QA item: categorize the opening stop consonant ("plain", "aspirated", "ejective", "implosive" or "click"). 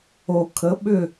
aspirated